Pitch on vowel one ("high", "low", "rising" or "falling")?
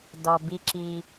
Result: low